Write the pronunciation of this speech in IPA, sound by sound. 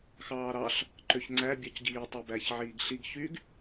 x ɑː ɾ ɑ ɬ | ǃ ø ç ŋ͡ǀ æ bʲ ɑ c ɟ iː tˤ æ b æ ç ʕ iː ɡ ɬ i ɡ ç y ɡ

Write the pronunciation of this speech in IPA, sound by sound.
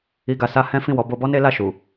i˧ ɡ a˨ s a˧ h ɛ̃˦ f ĩ˦˨ w ɔ˨˦ b o˧ b ɔ˦ n e˦ l a˦˨ ʃ u˨

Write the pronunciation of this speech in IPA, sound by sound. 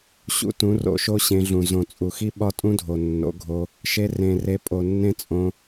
ɕ ṵ˧ t ũ˨˦ r o̰˧ ʃ o˦ ɕ ẽ˧ ɮ ũ˨ z õ˨ t͡sʼ u˨ x i˦ ɓ ɒ˦ tʼ ũ˦ dʱ o˨ nː o̰˨˦ ɡʱ o˧ | ʃ e˧ r ẽ˨ r e˧ pʼ o˨ nː ẽ˦ t͡sʼ õ˧

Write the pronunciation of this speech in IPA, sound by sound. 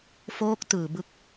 f oː˦˥ k̚ t ɯː˨˩ b ɯ˦˥ k̚

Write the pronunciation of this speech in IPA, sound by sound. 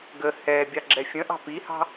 ɡ ə h ɛ bʲ ɑ ɡ͡ǁ ɛ fʲ ə̃ ʔ ɑ̤ p i h ɑ̤

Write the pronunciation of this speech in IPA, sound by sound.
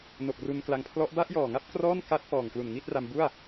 n o˨˩ k̚ r u˧ n k l a˧ ŋ pʰ l ɔ˦˥ ʔ b a˥˩ ʔ j ɔː˨˩ ŋ a˦˥ p̚ k r ɔː˥˩ n k a˦˥ t̚ p ɔː˨˩ ŋ k l u˨˩ n ŋ i˥˩ t̚ r a˧ m b u˥˩ a̯

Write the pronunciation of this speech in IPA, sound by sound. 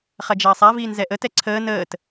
χ ɐ d͡ʒ ɐː sˤ a v iː n z ɛ ʔ ə t ɛ ǀʰ əː n əː t

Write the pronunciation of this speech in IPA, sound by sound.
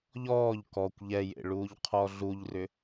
ʎ ɔː ʎ k ɔ kʷ ʎ ɛ j ḛ ɭ uː ʎ qʰ ɔ ɮ u ʎ r ʏ

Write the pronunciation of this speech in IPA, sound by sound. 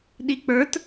ɗ i k͡p ə˞ t

